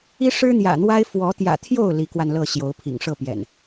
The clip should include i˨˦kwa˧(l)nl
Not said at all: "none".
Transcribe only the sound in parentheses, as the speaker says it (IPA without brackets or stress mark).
none